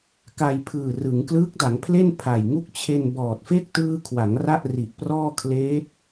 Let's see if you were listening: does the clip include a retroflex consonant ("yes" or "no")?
no